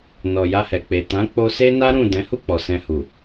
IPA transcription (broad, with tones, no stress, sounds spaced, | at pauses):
n ɔ˨ j a˧ h ɛ˨ k͡p e˨ t ã˨˦ k͡p o˧ s e˦ n a˦ ɾ ũ˦˨ d ɛ̃˨˦ h u˦˨ k͡p ɔ˨ s ɛ̃˧ h u˨